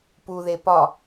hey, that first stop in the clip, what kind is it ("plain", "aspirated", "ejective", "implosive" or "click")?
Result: plain